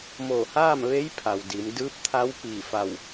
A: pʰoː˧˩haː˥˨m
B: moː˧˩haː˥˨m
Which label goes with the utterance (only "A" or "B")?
B